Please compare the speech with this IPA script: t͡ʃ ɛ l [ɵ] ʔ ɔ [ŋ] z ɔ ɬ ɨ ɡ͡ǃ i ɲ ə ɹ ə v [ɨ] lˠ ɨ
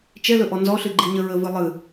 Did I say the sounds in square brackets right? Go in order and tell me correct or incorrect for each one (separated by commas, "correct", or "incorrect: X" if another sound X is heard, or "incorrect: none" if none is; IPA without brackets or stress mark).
correct, incorrect: n, correct